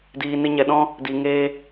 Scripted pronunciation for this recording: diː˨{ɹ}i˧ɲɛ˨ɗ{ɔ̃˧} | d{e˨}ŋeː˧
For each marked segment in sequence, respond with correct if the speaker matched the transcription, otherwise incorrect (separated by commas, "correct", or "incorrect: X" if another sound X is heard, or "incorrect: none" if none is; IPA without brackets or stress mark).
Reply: incorrect: n, incorrect: ɔ̃˦, incorrect: i˨